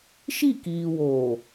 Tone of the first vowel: falling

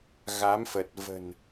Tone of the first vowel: rising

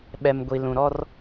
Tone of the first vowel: low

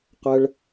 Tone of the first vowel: high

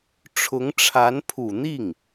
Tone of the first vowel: rising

